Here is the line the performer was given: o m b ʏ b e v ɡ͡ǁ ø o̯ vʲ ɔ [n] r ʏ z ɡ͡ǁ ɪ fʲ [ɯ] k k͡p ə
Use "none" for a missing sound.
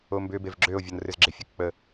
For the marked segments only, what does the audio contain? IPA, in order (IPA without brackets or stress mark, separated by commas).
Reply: n, ɯ